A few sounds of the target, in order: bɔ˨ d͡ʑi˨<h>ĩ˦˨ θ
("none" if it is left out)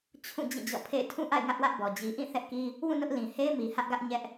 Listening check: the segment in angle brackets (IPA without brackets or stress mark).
ʔ